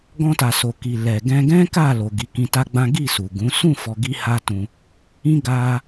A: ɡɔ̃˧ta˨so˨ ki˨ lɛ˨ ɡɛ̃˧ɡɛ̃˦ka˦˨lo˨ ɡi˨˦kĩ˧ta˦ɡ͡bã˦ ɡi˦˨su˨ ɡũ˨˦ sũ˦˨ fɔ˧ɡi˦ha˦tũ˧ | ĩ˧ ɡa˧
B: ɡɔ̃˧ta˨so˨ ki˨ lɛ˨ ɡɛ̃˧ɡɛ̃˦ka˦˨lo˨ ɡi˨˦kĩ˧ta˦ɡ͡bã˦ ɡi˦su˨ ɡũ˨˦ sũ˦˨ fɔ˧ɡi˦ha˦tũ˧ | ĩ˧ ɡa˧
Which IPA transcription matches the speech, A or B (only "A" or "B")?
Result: A